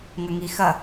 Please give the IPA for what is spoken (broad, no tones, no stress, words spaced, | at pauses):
ŋɐŋixɐ